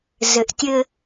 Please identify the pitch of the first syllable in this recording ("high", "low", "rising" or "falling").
low